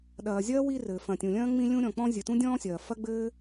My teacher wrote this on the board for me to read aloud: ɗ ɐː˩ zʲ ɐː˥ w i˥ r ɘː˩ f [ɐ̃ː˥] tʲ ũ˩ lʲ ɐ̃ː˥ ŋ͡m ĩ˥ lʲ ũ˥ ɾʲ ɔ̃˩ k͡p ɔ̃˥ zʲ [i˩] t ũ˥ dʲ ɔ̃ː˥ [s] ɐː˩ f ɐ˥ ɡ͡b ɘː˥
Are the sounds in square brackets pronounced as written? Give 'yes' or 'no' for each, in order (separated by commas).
no, no, no